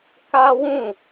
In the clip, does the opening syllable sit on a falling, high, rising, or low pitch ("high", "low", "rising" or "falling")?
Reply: high